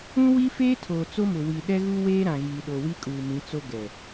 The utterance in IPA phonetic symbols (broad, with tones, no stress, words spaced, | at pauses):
ũ˦wi˦feː˦ tʰoː˨t͡so˦mʊ˨ wi˨ ɗɛ˦ɣu˦weː˦ ɾã˨ɣiː˨ɗo˨ wi˦kʼuː˨mĩ˨˦t͡so˦ ɡɛ˨